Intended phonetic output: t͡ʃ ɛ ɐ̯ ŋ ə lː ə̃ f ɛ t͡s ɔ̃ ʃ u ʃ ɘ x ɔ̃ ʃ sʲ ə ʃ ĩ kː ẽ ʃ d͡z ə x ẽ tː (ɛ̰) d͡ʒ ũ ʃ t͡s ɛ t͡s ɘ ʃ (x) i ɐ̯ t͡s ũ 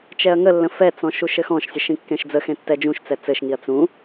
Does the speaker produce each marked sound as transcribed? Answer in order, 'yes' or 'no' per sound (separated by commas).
no, no